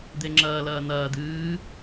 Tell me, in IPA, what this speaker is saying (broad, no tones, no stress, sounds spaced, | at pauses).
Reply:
d̪ e ŋ͡ǁ ɐː l ɐː n̪ ɐː d̪ ɨː